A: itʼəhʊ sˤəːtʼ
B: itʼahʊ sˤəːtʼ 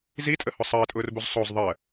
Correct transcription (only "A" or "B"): A